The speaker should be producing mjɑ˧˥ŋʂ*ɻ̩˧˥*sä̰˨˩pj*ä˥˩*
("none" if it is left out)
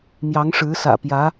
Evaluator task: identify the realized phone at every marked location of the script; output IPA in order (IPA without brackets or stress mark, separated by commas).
ɻ̩˧˥, ä˧˥